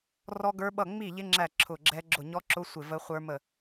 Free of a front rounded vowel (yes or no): yes